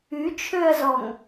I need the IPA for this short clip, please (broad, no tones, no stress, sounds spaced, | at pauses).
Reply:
y t͡ʃʰ ø ɐ̯ z ɔ ŋ